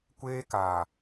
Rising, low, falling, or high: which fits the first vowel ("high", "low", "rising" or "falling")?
high